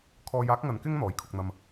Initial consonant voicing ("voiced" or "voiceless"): voiceless